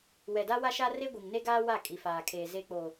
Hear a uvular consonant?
no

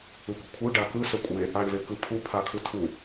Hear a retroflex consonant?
yes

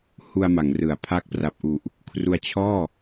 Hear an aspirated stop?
yes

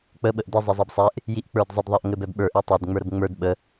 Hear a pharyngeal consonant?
no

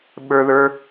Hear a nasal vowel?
no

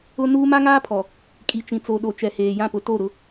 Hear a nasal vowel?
yes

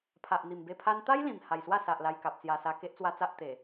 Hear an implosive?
no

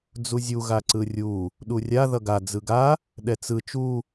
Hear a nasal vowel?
no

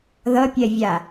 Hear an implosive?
no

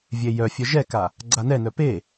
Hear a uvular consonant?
no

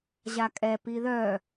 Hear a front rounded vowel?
yes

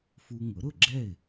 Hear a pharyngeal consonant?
no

